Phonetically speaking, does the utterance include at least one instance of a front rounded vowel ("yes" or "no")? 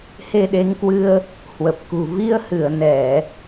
no